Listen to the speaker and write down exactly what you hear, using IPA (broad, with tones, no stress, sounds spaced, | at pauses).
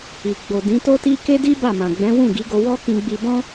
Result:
i˨ ɡ͡b o˨ d ĩ˨˦ t o˦ t i˦ k e˦ d i˦ b a˦˨ m ã˨ ɡ͡b ɛ̃˨˦ w ũ˦˨ ɡ i˨˦ ɡ o˧ w ɔ˦ k ĩ˧ ɡ͡b i˧ b ɔ̃˦